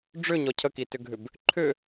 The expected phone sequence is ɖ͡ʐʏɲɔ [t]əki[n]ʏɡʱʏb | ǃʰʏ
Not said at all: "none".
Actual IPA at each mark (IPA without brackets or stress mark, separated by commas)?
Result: cʰ, t